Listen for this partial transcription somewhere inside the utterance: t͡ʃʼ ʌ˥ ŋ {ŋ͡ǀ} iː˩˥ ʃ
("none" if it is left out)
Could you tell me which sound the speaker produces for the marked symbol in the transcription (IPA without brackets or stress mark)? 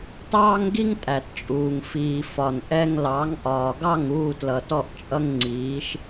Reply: ŋ͡ǀ